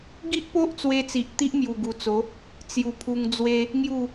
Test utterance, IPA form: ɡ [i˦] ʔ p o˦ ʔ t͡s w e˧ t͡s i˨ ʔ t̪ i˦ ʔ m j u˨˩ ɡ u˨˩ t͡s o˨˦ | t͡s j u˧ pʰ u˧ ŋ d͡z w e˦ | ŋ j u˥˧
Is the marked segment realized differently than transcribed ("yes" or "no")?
no